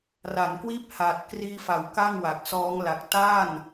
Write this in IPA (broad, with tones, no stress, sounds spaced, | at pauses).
r a˩˦ n k w iː˥˩ p̚ h aː˨˩ t̚ k r iː˧ f a˩˦ w k a˥˩ ŋ w a˨˩ k̚ s ɔː˦˥ ŋ l a˨˩ k̚ t a˥˩ n